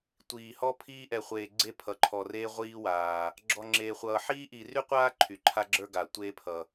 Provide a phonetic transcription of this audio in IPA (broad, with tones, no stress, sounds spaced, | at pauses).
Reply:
tʷ iː˧ h ɔ˥ pʰ iː˥ ʔ ɛ˧ χʷ eː˧ ɡ͡ǀ e˥ pʰ ʌ˧ ǃʰ ɔ˧ r eː˥ ʁʷ iː˥ w aː˧ | ɡ͡ǁ ɔ˧ ŋ͡ǁ eː˧ χʷ ʌː˧ ħ iː˥ ʔ i˧ r y˥ qʷ aː˥ ǃʰ y˧ ǃʰ a˥ ɡ͡ǁ ə˞˥ ɡ a˧ tʷ eː˥ pʰ ʌ˧